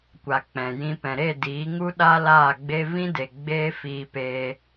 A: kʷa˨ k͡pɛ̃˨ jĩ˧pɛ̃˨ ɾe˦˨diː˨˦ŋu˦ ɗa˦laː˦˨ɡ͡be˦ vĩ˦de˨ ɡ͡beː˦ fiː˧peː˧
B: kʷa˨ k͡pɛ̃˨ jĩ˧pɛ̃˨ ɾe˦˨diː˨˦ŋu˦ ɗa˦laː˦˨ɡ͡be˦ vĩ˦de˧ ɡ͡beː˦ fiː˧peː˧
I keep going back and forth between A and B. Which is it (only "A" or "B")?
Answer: A